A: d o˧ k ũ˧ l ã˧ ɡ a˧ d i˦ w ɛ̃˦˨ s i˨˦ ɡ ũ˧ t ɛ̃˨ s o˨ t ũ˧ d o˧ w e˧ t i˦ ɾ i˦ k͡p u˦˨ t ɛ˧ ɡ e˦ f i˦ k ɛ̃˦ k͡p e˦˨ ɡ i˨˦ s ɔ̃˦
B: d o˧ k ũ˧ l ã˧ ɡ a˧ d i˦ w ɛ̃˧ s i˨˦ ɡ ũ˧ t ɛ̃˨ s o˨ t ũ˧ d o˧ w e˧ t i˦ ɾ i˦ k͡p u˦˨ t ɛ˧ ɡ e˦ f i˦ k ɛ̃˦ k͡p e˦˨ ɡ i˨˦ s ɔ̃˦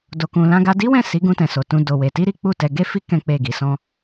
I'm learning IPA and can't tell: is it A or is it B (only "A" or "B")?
A